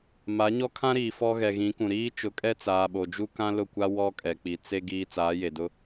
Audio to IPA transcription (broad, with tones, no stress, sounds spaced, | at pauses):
m a˨˦ ɲ ɔ˦ kʰ ã˦ ɾ iː˨ f ɔ˦ ɣ ɛ˨ ɣ ĩ˨˦ k ũ˨ ɾ iː˦ t͡ʃ ʊ˨˦ kʼ ɛ˦ t͡s aː˨ ɓ o˨ d͡ʒ u˦ k ã˦ l ʊ˦˨ kʷ a˦ w ɔ˦ kʼ ɛ˨ k͡p i˨ t͡s e˦ ɡ iː˦ t͡s aː˨˦ j e˨ d ʊ˦